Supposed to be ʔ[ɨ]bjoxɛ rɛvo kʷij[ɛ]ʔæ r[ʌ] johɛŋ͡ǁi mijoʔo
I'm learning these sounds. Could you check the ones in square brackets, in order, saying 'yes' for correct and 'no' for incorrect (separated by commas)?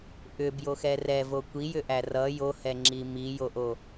no, no, yes